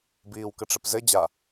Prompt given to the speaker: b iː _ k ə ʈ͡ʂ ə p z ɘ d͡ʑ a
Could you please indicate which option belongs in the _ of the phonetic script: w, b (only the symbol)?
w